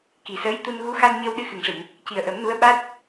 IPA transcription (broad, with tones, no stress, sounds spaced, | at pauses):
k i˨˩ s əː˧˥ j t̪ u˧ n ɣ u˧˥ x a˧ n ɲ əː˧ w ɗ ɨ˧ x ɨ˨˩ ŋ ʂ ɨ˨˩˨ ŋ | c i˨˩ ə̯ ʔ ə˨˩˦ m n u˧˥ ə̯ ɓ a˦˥ t̚